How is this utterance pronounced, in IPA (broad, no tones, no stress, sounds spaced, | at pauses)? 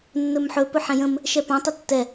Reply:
nː ɵ m ħ ɵ p ɵ ħ ɛ̃ j ə̃ m | ʃ ɛ p ã tˤ e tː ɛ